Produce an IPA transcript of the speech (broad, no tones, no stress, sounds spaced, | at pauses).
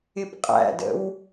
ɪ p qʼ æ̰ d ə̰ w